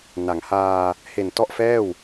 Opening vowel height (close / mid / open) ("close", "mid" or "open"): open